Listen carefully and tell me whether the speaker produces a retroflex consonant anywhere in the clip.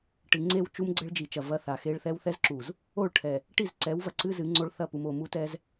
yes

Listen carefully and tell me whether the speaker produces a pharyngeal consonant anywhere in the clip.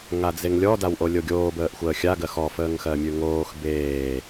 no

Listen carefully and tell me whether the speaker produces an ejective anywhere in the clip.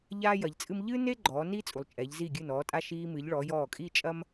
yes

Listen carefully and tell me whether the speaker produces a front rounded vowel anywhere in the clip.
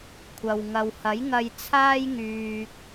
yes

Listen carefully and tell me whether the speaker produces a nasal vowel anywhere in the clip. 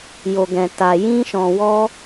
yes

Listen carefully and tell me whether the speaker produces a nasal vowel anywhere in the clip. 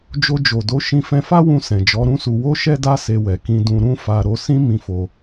yes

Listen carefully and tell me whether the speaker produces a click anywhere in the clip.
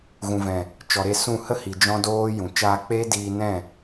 no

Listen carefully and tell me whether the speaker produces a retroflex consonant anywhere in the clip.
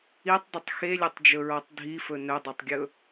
no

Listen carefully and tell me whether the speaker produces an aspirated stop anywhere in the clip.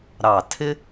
yes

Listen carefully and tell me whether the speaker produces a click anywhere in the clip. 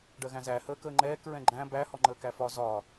yes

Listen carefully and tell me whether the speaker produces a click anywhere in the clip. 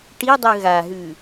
no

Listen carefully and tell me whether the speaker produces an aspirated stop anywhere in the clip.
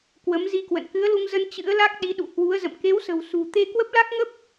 no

